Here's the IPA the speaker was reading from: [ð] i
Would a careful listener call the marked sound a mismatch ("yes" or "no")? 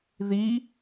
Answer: no